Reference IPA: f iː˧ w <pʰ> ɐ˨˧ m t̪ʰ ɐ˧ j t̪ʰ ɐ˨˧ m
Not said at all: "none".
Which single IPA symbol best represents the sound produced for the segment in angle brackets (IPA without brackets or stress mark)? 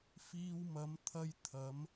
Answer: m